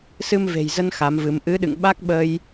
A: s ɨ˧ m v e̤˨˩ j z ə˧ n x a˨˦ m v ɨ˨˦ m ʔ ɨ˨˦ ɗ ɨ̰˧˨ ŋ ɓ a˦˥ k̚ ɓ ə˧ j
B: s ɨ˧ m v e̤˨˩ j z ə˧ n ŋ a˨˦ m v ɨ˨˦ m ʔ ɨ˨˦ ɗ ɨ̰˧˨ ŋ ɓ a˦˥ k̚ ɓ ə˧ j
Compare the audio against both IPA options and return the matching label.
A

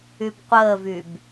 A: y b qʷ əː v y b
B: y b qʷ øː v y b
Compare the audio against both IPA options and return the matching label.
A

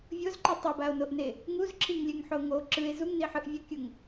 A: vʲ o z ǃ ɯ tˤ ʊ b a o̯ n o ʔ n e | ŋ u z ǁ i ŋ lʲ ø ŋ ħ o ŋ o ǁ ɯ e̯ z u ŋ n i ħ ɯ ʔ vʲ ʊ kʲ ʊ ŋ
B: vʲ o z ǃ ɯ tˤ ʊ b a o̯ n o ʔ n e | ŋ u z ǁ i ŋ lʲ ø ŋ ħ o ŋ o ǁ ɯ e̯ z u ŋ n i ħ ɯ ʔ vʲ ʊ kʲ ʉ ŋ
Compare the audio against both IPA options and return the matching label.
A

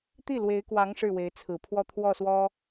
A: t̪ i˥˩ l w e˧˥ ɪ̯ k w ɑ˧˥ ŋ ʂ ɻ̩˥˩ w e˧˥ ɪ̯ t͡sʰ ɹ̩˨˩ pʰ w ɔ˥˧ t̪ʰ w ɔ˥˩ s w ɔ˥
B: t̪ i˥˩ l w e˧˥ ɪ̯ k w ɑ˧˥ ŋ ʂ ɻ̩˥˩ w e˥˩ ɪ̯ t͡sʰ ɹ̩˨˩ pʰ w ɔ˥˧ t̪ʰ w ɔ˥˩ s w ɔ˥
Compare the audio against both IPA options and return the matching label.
A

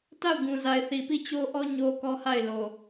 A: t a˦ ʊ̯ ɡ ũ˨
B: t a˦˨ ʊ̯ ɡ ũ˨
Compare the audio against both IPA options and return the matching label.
B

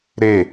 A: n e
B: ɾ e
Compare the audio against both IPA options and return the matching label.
B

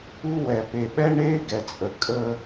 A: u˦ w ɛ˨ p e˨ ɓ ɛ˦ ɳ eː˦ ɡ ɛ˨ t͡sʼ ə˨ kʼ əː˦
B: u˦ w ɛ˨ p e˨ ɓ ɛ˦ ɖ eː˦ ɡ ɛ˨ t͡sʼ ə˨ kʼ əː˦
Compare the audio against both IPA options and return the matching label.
A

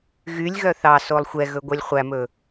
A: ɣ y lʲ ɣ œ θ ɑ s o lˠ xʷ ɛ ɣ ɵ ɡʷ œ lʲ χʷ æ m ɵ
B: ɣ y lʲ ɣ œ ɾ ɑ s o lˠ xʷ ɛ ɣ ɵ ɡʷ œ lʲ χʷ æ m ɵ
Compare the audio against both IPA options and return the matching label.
A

